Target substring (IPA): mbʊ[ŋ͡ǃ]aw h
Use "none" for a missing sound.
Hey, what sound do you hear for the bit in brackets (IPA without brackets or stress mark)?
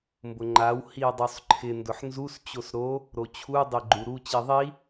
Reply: ŋ͡ǃ